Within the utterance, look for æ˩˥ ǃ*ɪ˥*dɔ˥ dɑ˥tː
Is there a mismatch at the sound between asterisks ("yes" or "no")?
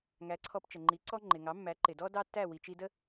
yes